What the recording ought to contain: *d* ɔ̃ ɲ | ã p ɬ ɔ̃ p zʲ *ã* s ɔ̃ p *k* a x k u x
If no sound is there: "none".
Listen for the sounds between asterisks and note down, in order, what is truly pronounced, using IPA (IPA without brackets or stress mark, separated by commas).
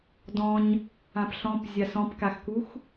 d, a, k